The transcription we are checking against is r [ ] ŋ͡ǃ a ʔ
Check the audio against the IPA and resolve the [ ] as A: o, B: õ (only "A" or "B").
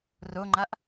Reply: A